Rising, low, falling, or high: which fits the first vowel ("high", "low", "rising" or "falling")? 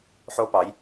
high